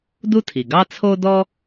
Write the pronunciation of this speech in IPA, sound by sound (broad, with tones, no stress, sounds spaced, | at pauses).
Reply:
d u˥ tʰ i˩ ɡ ɑ˥ t͡sʰ o˥ d ɔ˥